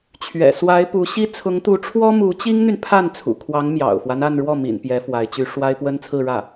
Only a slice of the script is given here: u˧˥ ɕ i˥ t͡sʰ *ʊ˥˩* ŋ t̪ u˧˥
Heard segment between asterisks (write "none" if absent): ʊ˧˥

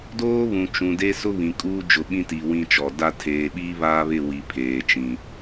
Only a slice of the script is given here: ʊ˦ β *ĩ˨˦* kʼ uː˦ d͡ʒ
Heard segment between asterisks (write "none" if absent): ĩ˨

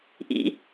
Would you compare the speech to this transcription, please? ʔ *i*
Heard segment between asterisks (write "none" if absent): ḭ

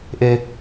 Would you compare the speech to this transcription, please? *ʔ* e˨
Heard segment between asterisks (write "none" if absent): ʔ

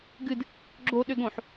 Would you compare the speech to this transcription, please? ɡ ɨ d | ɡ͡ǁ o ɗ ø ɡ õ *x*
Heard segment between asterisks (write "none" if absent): ħ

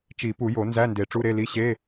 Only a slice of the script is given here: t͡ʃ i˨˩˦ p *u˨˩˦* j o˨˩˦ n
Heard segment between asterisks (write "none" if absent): u˨˩˦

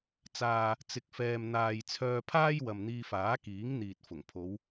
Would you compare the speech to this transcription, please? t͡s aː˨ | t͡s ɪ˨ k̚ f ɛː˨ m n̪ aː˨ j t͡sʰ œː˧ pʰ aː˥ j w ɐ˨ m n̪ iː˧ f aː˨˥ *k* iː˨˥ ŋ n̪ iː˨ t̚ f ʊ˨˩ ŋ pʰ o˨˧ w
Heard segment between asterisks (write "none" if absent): k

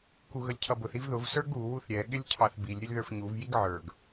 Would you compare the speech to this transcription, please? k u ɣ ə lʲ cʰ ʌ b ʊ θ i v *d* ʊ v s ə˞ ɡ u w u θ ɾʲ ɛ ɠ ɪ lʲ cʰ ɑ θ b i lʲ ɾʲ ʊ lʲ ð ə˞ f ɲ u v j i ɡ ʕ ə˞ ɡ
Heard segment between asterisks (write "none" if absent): ð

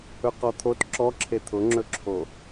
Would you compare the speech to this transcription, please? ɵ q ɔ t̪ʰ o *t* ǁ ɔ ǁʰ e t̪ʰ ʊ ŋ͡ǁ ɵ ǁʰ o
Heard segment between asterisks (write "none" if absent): t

